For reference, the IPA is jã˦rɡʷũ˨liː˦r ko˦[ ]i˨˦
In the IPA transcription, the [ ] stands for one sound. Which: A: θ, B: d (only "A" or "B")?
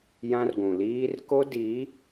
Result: B